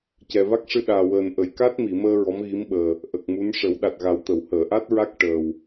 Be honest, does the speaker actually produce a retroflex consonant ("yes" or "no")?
yes